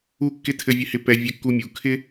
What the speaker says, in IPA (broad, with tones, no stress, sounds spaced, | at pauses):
u˥ kː ɪ˥ tʰ ɘ˧ vʲ ɘ˧ h ɪ˧ p ɛ˧ vʲ ɘ˧ kː u˧ mʲ u˩ kʰ ɪ˥